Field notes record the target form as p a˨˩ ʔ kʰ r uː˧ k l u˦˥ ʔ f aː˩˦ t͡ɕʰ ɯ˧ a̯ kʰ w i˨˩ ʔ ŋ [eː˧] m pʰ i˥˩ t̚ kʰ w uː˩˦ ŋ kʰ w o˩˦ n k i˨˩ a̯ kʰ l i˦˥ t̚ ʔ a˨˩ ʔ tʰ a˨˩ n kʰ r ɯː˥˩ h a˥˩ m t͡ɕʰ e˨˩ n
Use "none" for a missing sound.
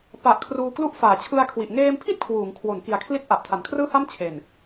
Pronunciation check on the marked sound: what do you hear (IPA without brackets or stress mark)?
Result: eː˧